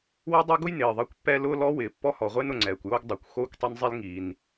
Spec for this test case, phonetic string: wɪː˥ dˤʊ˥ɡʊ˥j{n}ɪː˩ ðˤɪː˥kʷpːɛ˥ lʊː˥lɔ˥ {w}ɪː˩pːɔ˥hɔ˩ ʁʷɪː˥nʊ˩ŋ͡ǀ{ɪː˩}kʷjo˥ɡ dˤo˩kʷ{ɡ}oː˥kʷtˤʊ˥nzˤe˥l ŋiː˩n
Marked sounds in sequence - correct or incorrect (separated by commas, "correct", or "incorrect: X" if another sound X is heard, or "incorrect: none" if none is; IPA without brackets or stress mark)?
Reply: correct, correct, incorrect: ɛː˩, incorrect: x